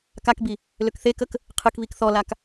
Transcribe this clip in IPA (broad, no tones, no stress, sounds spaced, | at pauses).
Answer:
k a k b i | l ø k θ e k ə k | qʰ ɨ k β i k θ ɔ l a k